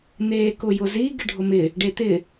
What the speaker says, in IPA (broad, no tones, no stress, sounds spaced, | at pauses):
n̪ eː k ʊ j ʊ z i ɡ ɪ ɖʱ ʊ m ɪ | ɖ e t̪ ɪ